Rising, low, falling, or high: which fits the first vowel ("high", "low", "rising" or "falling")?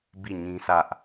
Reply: falling